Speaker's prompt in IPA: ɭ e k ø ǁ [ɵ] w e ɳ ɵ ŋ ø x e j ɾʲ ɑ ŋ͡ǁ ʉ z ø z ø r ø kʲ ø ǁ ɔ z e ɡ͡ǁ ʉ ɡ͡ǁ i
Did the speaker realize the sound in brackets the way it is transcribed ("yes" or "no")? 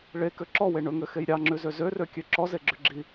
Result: no